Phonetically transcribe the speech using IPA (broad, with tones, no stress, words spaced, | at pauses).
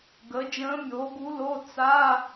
ɡə˩˥ d͡ʒə̃ː˧˥mʲoː˩˥ɡu˧˥lo˧˥˧ t͡sa˧˥˧